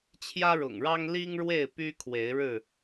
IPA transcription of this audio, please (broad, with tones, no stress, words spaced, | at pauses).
t͡ɕʰjä˦ɻʊ̰˨˩ŋɻɑ˦ŋ li˦ŋɻwe˥˨ɪ̯ py˦kʰwe˨˦ɪ̯ɻɻ̩˥˨